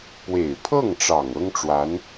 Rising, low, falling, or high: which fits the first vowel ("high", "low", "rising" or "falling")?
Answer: low